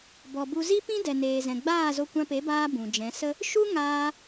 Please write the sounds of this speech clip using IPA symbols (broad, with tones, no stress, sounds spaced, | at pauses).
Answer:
b ɔ˨ b u˧ z i˦ p ĩ˦ d ɛ˨ n eː˨ z ɛ̃˨ ɡ͡b aː˦˨ z o˧ kʷ ã˧ p e˨˦ b aː˧ b ũ˨ d͡ʒ ɛ̃˨˦ s ə˦ | ʃ u˦ ŋ aː˧